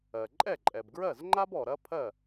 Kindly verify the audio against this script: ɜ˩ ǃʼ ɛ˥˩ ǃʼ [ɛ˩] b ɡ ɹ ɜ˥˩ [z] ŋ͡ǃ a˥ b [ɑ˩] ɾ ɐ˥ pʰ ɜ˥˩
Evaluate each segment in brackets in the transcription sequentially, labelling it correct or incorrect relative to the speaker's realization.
correct, correct, incorrect: ɔ˩

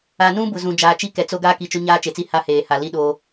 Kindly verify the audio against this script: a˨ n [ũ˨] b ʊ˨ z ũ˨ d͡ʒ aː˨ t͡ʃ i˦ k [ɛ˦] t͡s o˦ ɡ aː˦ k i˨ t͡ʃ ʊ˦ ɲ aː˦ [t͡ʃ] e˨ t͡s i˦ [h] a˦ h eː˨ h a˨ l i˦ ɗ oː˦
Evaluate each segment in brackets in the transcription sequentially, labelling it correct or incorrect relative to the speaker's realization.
incorrect: ũ˦, incorrect: ɛ˨, correct, correct

